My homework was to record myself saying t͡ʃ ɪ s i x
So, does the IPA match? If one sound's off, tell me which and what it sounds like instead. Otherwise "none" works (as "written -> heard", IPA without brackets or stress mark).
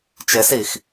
none